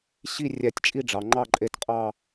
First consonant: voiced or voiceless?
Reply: voiceless